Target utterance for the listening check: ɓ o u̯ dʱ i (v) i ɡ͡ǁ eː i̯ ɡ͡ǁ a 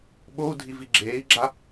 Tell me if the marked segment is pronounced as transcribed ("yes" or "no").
yes